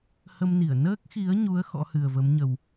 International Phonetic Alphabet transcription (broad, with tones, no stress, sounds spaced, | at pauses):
h ə˧ m n i˧˩ ə̯ n əː˦˥ k̚ x i˨˦ ə̯ ɲ u˨˦ ə̯ x ɔ̰˧˥ h ɨ˨˩ ə̯ v ə˨˦ m ɲ ə˨˩ w